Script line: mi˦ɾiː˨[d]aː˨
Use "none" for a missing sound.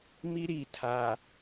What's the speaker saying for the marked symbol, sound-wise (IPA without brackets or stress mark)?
tʰ